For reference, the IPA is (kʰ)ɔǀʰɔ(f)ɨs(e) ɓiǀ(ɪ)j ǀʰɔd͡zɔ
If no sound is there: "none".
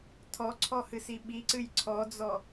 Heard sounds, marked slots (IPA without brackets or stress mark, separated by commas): tʰ, h, i, ɨ